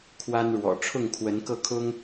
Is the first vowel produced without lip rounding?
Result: yes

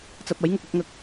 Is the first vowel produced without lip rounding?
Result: yes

